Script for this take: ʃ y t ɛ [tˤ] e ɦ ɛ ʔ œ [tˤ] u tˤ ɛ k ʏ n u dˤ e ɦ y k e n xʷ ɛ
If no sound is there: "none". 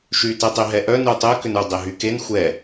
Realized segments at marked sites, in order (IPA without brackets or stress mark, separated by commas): tˤ, n